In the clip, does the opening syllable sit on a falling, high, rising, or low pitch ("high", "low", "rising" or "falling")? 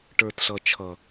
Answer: low